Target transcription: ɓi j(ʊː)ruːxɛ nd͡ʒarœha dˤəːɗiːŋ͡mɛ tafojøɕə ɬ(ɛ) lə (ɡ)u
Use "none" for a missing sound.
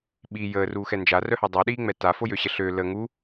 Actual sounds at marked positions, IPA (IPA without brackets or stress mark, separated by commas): əː, ø, ŋ